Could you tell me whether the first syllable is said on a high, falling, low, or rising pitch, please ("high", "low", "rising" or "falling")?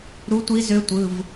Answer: rising